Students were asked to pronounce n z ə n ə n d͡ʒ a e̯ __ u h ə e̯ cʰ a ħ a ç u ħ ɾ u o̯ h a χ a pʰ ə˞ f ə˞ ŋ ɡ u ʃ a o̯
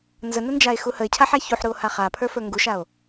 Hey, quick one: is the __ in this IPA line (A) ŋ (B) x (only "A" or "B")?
B